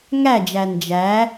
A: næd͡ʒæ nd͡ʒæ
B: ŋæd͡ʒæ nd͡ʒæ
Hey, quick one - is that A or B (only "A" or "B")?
B